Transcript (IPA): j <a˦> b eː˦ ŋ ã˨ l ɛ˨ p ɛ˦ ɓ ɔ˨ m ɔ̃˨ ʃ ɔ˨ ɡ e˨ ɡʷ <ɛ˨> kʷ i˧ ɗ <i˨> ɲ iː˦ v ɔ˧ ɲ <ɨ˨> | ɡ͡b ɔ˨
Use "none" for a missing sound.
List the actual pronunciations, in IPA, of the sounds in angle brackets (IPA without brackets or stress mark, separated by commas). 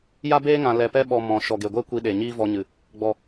a˦, ɛ˦, e˨, ɨ˨